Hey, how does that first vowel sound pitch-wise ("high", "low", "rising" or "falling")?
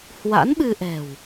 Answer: rising